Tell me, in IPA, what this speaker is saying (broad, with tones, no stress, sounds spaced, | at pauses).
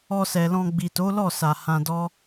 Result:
ɔ˧ s ɛ˨ l ɔ̃˧ ɡ͡b i˨ t o˨˦ l ɔ˦˨ s a˨ h ã˧ d ɔ˦